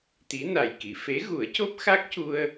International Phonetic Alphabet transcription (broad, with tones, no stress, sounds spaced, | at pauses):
t̪ i˧˥ n a˨˩ j k i˨˩˨ f e˧˥ ɣ u˨˩˦ ə̯ c o˦˥ p̚ x a˦˥ k̚ c u˧ ə̯